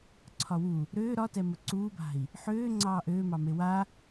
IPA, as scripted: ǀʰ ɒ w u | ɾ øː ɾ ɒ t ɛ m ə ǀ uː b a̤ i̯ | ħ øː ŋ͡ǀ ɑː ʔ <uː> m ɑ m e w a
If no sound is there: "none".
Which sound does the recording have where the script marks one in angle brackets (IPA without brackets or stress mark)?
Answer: øː